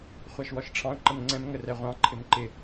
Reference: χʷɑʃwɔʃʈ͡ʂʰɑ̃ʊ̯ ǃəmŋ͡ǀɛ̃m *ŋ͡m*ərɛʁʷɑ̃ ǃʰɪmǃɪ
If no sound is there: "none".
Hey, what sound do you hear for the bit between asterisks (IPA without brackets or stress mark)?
ŋ